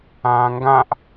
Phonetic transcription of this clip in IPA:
ãː ŋ ɡ ã ʔ

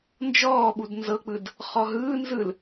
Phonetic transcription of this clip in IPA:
n d͡ʒ ɔː ɓ u d n z ɤ k͡p ɯ d | χ ɔ ɦ ɯː n z ɯ l

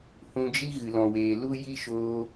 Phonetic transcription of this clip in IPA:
h ũ˧ d͡ʒ i˦ ɣ ɨ˨ l ɔ̃˨ w eː˨ l u˦ j i˦ ʃ oː˧

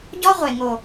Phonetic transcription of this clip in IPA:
ɟ ɔ˦ ʁʷ e˨ ŋ o˨

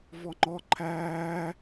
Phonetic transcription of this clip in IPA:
v ɔ ŋ͡ǃ ɔ ǃʰ æː

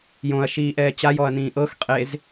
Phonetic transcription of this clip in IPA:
j õ ɐ̯ ʃ iː ʔ ɛː t͡ɕ a j ɔ ɐ̯ n ĩː ʔ ɤ x qʼ e z

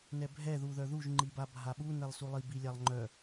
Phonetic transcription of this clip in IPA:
n ɛ bʱ ɛ ð u ð œ ð u ʒ ŋ͡ǃ i b a bʱ a ɓ u n ɛ lˠ s u lˠ i b i lʲ a lˠ ŋ͡ǃ œ

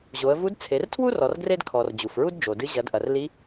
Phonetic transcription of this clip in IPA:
ʑ o˩˧ ə̯ v u˧˥ d t͡sʰ e˩˧ r tʰ w u˥ r ɔ˩˧ r ɡ r e˥ d kʰ ɔ˩ r d͡ʑ u˩ f ɹ u˥ d d͡ʒ o˩ d ɨ˧˥ ʑ ɐ˩˧ d ʔ ɐ˩ r l i˧˥

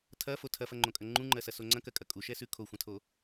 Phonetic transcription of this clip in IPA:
tʰ ɐ f o tʰ ɐ f ɐ ŋ͡ǃ õ kʼ ɐ ŋ͡ǃ ũ ŋ͡ǃ ɜ s ɐ s o ŋ͡ǀ ɐ̃ k ɜ kʼ ɐ kʼ u ʃ ɛ s ʉ kʰ o xʷ ɐ̃ tʰ o

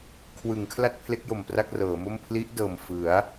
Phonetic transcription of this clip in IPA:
kʰ w ɯ˩˦ ŋ kʰ l a˥˩ t̚ pʰ l e˦˥ k̚ j o˨˩ m p r a˥˩ k̚ r ɤː˩˦ m o˥˩ m pʰ l i˦˥ ʔ d ɤː˨˩ m f ɯ˩˦ a̯

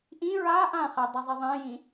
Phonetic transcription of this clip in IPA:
ʔ ĩ ɹ a ʔ ã χ ɛ dˤ ə zˤ i ðˤ ɛ̃ j ĩ

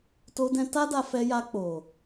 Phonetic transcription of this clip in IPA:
t o˧ d ɛ̃˧ t a˦ d a˧ f ɛ˧ j a˧ k͡p o˨

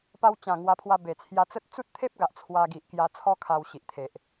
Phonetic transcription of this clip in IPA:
p a˧ w t͡ɕ ã˨˩ ŋ w a˧ pʰ w a˧ b e˨˩ t͡sʰ j a˧ t͡s ə˦ t̚ t͡s u˦ t̚ t̪ʰ e˦ p̚ ɡ a˨ ʔ t͡sʰ w a˧ ɡ i˨ ʔ k j a˧ t͡sʰ ɔ˦ kʰ a˧ w ɕ i˨ ʔ t̪ʰ e˨ ʔ

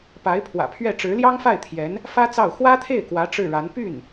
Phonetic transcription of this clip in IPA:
p a˧˥ ɪ̯ pʰ w ä̰˨˩ pʰ ɥ ɛ˥˩ ʈ͡ʂ ɻ̩˧˥ l j ɑ˥ ŋ f a˥˩ ɪ̯ t̪ʰ j ɛ˧˥ n | f ä˥ t͡s ɑ˥˩ ʊ̯ x w ä˥ t̪ʰ e˥˩ ɪ̯ k w ä˧˥ ʈ͡ʂ ɻ̩˥˩ ɻ a˧˥ n p y˥˩ n

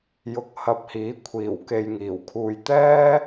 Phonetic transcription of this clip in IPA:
j ʊ˧ k̚ h ɐ˧ p̚ h iː˨˥ kʷʰ iː˨˩ w k e˨ j ŋ iː˨˩ w kʰ uː˨ j t̪ ɛː˥

